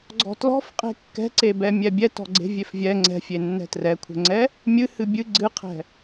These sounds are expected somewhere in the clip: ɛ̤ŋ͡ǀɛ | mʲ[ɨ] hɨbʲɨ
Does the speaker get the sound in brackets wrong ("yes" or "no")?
no